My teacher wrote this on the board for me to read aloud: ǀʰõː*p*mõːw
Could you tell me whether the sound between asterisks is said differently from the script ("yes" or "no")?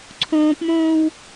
no